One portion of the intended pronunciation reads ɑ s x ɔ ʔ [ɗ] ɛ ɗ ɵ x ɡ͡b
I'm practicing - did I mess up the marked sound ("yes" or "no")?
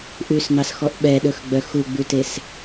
yes